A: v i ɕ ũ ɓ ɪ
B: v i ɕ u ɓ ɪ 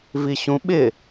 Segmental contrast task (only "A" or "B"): A